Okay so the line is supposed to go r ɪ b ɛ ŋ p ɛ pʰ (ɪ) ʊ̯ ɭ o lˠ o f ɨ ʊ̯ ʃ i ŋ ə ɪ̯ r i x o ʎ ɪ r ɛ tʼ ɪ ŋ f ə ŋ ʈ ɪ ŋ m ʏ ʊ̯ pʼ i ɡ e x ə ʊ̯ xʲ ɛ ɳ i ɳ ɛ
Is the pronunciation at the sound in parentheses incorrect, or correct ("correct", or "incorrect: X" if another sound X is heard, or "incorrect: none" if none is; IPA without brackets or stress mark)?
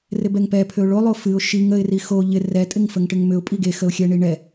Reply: incorrect: ʏ